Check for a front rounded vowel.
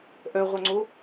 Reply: present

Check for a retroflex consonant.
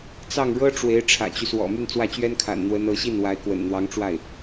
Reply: present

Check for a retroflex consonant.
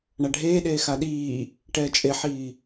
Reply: present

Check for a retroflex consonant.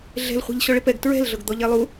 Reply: present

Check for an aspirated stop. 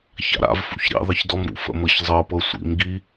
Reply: absent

